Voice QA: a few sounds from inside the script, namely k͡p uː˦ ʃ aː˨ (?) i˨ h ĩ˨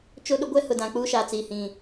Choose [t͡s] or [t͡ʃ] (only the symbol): t͡s